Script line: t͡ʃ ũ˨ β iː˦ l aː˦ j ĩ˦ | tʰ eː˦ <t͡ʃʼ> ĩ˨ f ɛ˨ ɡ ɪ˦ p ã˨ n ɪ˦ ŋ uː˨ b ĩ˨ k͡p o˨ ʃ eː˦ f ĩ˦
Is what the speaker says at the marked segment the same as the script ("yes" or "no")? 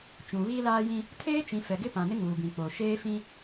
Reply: no